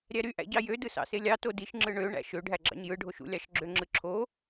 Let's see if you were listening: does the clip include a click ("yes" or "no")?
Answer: yes